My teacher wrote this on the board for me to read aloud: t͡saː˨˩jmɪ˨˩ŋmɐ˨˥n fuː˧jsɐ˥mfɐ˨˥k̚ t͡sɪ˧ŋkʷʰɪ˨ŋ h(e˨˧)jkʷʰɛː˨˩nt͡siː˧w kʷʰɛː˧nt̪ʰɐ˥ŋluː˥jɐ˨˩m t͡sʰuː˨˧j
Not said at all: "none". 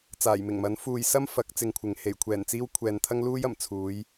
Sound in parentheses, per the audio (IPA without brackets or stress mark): e˨˩